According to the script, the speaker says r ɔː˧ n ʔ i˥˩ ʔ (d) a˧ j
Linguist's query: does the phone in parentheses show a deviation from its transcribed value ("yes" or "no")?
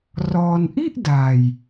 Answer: no